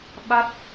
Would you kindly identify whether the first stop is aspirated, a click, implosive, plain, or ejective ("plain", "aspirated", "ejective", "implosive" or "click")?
implosive